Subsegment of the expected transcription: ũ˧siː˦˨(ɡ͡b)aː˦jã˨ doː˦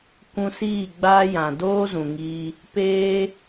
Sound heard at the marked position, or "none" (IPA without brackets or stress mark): ɡ͡b